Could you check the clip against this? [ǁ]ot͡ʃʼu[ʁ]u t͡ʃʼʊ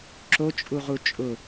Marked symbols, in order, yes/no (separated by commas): yes, yes